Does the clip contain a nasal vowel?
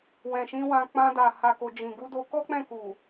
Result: yes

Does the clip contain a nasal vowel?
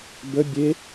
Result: no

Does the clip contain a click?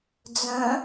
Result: no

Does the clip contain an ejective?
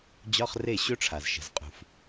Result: yes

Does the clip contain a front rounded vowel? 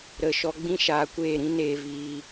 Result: no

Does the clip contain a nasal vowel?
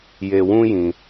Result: yes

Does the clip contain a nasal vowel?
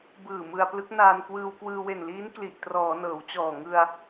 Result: no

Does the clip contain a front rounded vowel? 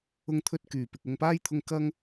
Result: yes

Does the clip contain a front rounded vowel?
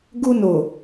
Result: no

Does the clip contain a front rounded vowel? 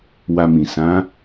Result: no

